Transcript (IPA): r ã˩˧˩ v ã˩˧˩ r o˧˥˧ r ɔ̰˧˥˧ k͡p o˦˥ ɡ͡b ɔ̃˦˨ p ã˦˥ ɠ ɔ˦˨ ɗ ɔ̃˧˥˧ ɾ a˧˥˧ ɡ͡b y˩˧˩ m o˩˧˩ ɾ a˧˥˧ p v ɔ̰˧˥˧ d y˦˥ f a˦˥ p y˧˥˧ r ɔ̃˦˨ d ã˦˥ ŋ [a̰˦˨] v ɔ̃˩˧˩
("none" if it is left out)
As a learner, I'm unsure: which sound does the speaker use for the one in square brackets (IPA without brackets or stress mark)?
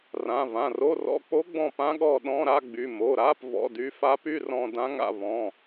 a̰˦˨